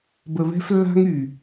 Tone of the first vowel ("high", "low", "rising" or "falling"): low